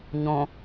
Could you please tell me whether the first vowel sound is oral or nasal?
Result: nasal